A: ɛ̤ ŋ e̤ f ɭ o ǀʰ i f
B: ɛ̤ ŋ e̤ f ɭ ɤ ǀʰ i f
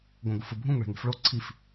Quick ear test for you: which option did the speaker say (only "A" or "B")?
A